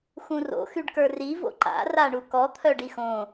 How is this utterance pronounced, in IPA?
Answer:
x ũ r o̰ x y ɖ k ə˞ r i v o̰ ǃ a̰ r a ɳ u k ɔ t̪ʰ œ ɖ i x õ

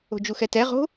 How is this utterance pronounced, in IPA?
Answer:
o̤ d͡ʒ u x ɛ t ɛ ʁ o̤

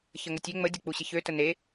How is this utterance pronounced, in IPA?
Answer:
ç ə ŋ ə tʲ ø ŋ͡m ə dʲ u k͡p u ɕ ɪ ç ø t ə n e

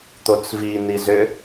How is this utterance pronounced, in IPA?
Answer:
t̪ o t͡s v i n i z ʏ

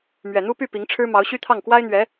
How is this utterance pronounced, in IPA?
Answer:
m ɥ ɛ˨˩ n̪ u˥ p y˥˩ p i˧˥ ŋ ʈ͡ʂʰ ɻ̩˥ m ɑ˧˥ ʊ̯ ɕ y˥ t̪ʰ ɑ˥˩ ŋ k w a˥ ɪ̯ n̪ ɥ ɛ˧˥

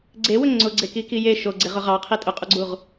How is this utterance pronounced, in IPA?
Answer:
ɡ͡ǀ e w ɵ ŋ͡ǀ ʊ ɡ͡ǀ e k i k i j e ʃ o ɡ͡ǀ e ʁ ʊ ʁ ɑ qʰ i tʼ ʊ qʼ u ɡ͡ǀ u ʁ

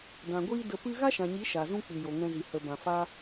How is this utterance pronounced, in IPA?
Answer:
d ã˨ ɡʷ iː˦ d ə˧ p ɨ˦ ɣ a˦ ʃ ã˨ ɲ i˨˦ ʃ a˨ z ũ˦ k͡p ɨ˨ j o˨ ŋ ɛ̃˧ z i˨ h ə˨ b ã˨ f a˦

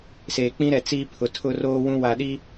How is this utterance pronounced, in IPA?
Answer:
s eː˨ k͡p ĩ˦ ɾ ɛ˨ t͡s iː˦ pʰ ʊ˨ tʰ ʊ˦ r oː˦ w ũ˦ w a˨ ɗ i˦

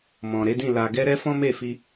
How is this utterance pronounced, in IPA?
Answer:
m ɔ̃˨ ɾ e˨˦ d ĩ˦˨ l a˧ ɡ ɛ˦ ɾ ɛ˦ f ɔ̃˦ m e˦˨ f i˧

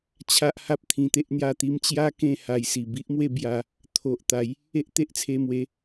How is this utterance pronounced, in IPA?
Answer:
t͡ɕʰ a˦ ʔ h a˦ p̚ t̪ʰ ĩ˧ t̪ e˦ ʔ n̪ j a˥˧ t̪ i˧ m t͡ɕ j a˦ k ẽ˥˧ h a˧ j s i˨˩ b i˦ ʔ m w e˥˧ b j a˧ | t̪ʰ o˨ ʔ t̪ a˨˦ j | e˦ ʔ t̪ e˦ ʔ t͡sʰ e˧ m w e˨˦

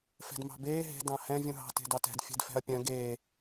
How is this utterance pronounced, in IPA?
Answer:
f ɛ̤ d m ɑ̤ b eː ɦ e̤ d ɑ̃ h ɛ̃ vʲ ũ ɦ ɑ̤ t e̤ d ɑ t ɛ̤ d fʲ ɛ̤ d f ɛ̤ ɐ̯ pʲ œ̃ ɡ eː

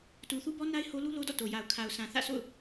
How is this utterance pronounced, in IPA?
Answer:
t u˨ θ u˦ b ɔ˦ n a˦ ɪ̯ h o˦ l u˦ l o˦ d ɔ̰˦˨ t o˨ j a˨ ʊ̯ kʰ a˨ ʊ̯ sʰ ã˨ θ ä̰˦˨ sʰ o̰˦˨ ʊ̯

